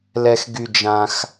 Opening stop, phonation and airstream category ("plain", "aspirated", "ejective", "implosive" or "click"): plain